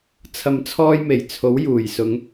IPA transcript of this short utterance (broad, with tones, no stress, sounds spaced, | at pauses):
t͡sʰ ɐ˨ m t͡sʰ ɔː˧ j m e˨˩ j t͡sʰ o˨˥ w j uː˨˩ j s ʊ˨˧ ŋ